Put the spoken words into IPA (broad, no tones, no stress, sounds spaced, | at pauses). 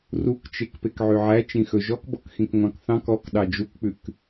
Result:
r u k t͡ʃ e k p e k ʕ y ʕ æ t͡ʃ ĩ x ɵ ʒ ɔ k b ɔ k x ĩ k ŋʷ ɑ̃ k θ ɑ̃ k ɔ k ɗ ɑ d͡ʒ u k k͡p ʉ k